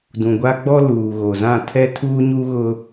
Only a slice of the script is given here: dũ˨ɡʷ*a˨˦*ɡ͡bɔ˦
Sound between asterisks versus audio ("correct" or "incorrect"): incorrect